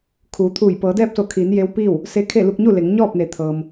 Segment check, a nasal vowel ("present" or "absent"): absent